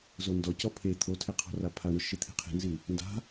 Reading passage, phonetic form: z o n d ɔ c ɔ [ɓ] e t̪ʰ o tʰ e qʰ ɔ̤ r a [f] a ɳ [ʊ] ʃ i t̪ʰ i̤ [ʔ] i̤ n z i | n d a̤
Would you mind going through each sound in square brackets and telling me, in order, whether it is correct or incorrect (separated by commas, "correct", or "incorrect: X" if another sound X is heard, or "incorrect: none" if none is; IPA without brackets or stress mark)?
incorrect: pʰ, incorrect: pʰ, correct, incorrect: qʰ